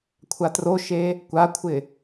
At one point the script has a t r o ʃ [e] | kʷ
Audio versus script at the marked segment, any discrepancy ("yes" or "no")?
no